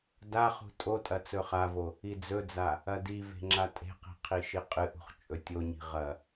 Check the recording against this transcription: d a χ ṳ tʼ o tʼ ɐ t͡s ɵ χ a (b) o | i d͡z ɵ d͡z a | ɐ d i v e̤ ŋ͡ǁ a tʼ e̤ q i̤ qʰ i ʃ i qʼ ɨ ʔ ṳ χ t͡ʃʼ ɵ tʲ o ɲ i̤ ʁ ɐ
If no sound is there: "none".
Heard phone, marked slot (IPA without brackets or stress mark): v